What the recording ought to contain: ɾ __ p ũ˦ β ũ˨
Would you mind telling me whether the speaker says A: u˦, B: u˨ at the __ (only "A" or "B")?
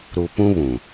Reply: B